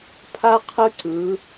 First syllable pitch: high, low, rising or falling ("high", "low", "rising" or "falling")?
high